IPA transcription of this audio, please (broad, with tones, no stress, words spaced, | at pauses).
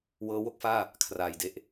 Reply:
wɤː˦˥wo˦˥k̚faː˥˩ | kʰraː˧jde˥˩ʔ